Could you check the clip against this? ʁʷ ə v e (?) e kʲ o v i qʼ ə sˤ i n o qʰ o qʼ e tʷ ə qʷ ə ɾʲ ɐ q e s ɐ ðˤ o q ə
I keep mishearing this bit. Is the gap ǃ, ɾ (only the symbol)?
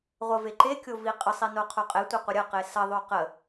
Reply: ǃ